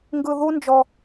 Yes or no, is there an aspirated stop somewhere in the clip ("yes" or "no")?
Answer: no